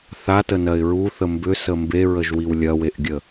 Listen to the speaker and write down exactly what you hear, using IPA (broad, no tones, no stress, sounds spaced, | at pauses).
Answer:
θ a t ə n ɜ ɪ̯ ɹ u θ ə m b ʏ s ə m b e ɹ ə ʒ w i w lʲ ɐ w e ʔ ɡʲ ə